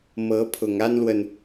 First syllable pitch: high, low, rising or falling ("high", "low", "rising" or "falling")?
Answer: rising